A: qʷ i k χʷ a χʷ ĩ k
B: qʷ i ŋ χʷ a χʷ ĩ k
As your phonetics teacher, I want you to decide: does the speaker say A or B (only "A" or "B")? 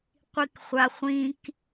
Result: A